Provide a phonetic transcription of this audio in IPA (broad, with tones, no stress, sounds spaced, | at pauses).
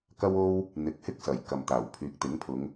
k ɐ˥ w o˥ w | n̪ ɪ˨˥ k̚ h ɪ˥ k̚ s ɐ˨˩ j k ɐ˨ m t̪ aː˨˩ w pʰ yː˨ k̚ t̪ ɪ˨˥ ŋ pʰ ʊ˨˧ ŋ